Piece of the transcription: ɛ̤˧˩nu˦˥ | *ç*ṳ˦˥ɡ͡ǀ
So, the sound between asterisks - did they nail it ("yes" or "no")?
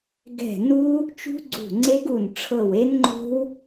no